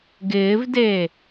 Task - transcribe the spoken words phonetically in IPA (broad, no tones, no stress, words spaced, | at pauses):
ɡɪːvdeː